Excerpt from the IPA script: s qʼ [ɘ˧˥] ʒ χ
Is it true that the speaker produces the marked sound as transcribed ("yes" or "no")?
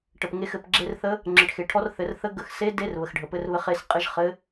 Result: yes